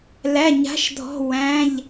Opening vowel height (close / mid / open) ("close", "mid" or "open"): open